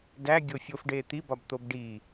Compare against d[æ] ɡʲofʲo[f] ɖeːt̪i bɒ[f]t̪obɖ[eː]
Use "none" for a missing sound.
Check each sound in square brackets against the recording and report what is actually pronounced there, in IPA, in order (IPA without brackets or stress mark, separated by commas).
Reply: æ, f, b, iː